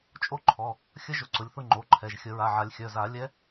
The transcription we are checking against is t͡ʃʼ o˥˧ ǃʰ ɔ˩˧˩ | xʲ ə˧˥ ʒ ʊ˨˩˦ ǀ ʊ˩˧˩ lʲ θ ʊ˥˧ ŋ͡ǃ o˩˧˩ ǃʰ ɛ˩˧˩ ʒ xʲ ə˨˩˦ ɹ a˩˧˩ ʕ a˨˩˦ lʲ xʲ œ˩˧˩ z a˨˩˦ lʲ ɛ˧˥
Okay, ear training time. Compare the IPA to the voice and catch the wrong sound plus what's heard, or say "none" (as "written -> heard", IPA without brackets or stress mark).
none